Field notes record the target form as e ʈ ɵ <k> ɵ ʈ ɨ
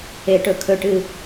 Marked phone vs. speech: incorrect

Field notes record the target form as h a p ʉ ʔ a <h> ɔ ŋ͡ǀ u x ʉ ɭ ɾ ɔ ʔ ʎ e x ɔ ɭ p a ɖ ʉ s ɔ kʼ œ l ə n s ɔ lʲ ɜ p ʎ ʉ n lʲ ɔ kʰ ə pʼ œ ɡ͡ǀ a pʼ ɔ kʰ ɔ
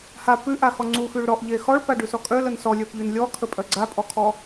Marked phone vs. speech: incorrect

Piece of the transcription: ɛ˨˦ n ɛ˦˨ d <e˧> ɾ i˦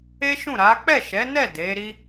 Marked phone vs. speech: incorrect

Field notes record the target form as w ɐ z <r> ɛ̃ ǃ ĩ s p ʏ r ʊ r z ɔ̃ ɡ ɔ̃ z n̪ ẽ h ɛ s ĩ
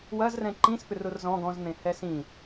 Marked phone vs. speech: correct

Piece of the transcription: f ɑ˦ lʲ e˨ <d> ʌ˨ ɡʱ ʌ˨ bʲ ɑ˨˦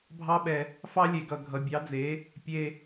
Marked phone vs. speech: incorrect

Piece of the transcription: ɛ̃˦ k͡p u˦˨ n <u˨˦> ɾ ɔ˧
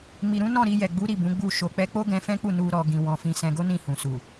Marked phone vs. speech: incorrect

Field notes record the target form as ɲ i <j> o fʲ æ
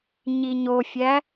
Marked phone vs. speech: incorrect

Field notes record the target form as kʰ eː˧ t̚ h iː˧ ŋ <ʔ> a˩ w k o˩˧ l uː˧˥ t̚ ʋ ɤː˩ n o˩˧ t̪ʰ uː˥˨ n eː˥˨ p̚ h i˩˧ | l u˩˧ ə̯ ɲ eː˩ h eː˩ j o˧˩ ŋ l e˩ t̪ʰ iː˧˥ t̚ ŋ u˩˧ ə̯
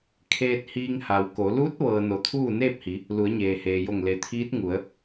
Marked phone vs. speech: incorrect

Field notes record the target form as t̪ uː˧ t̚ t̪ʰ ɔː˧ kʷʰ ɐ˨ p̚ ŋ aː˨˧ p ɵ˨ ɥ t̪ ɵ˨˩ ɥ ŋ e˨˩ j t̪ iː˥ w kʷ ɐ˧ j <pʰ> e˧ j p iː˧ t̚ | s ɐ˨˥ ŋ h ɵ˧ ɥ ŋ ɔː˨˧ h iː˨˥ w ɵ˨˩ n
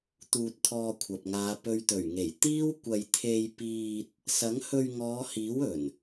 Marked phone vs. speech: incorrect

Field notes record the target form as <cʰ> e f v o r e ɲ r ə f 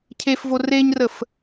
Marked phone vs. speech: correct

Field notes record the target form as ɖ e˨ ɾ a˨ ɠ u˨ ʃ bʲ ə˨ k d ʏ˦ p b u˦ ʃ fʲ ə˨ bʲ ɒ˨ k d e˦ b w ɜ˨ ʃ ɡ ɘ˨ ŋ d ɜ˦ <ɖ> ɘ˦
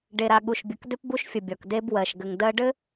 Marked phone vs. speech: correct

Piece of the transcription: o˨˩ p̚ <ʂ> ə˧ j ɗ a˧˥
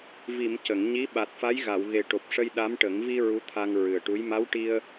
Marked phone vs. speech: correct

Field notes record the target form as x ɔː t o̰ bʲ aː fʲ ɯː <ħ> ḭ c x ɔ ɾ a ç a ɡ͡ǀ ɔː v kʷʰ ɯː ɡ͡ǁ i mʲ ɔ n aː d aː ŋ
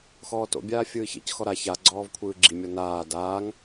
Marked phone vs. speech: incorrect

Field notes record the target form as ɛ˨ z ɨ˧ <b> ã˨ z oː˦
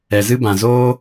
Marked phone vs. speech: correct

